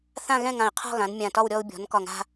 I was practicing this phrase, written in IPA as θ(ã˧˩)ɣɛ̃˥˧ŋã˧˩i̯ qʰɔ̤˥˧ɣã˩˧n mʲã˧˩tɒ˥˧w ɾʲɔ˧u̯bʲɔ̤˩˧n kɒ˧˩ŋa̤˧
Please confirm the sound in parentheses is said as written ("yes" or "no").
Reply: no